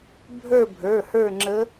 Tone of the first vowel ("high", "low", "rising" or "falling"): falling